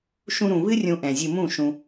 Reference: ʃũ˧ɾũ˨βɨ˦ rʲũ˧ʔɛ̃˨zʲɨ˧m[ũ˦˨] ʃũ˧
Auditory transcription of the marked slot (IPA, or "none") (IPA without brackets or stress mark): ũ˦˨